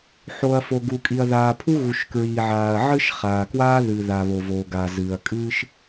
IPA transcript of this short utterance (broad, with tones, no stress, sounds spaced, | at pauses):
ħ o˩ ɐ̯ f o˩ ɡ u˩ kʼ i˩ ɐ̯ ð aː˩ pʰ u˥ ɣ u˩ ʃ k ɹ iː˩ ʕ aː˩ ɐ̯ ʕ ɨ˥ ʃ χ aː˩ k w aː˥ ð ɨ˩ ð a˩ β o˩ v oː˩ ɡ a˩ z ɨː˩ ɐ̯ kʼ ɨː˥ ʃ